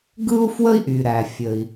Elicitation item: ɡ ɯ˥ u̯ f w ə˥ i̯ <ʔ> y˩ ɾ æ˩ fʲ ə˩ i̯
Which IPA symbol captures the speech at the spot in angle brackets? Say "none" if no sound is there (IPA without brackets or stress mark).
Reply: ʔ